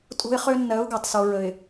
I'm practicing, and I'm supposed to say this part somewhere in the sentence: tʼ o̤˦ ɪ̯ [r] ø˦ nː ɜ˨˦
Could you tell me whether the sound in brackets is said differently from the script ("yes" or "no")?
yes